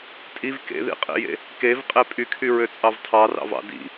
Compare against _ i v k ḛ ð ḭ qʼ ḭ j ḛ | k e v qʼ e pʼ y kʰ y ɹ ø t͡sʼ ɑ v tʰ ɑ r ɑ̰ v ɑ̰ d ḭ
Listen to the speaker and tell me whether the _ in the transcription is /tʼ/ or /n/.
tʼ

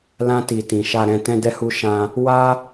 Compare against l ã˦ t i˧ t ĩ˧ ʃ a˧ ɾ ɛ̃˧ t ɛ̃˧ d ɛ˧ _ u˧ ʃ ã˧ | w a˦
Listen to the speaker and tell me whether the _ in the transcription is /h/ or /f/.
h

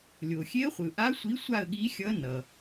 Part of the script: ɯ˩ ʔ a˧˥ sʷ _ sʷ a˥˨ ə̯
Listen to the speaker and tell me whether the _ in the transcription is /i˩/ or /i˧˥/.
i˧˥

